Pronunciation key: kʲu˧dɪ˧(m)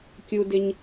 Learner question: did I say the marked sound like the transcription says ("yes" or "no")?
no